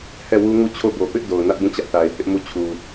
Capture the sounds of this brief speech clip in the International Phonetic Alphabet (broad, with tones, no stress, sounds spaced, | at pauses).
h ɛ˦˨ w u˦ ŋ u˦˨ t͡ɕʰ o˦˨ b o˨ p ɪ˦ ʔ d o˨ ʊ̯ n ä˦ ʔ b ũ˦˨ t͡ɕ ä˦ ʔ θ a˨ ɪ̯ h ɪ˦ ʔ m u˦˨ t͡ɕʰ u˨